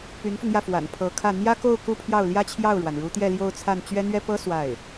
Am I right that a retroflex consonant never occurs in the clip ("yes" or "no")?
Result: no